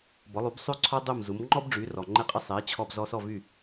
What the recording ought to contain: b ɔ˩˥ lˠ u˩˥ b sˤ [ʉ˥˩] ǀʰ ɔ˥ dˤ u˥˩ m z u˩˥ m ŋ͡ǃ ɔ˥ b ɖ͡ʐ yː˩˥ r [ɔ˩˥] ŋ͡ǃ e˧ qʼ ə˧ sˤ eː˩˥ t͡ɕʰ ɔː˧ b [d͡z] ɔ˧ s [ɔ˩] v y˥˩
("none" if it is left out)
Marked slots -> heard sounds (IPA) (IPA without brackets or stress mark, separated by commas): ʉ˥˩, ɔ˩, z, ɔ˥˩